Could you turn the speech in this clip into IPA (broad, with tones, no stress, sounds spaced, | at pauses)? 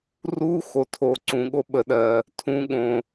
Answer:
r u˦ x o˨ tʰ o˨ ǀ ũ˨ ɠ o˦ ɓ ə˨ ɗ ɜ˨ | tʰ ũ˨ ɠ õ˨